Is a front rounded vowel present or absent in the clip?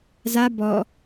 absent